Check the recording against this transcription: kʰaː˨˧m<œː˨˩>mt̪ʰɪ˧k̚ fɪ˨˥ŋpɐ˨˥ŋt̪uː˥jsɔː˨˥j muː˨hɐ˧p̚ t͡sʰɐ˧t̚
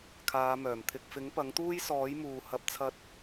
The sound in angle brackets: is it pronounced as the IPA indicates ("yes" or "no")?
yes